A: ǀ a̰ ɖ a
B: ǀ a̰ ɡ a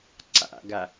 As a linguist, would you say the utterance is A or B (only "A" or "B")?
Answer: B